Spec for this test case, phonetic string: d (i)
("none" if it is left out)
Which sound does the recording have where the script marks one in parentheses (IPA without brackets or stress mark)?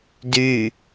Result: y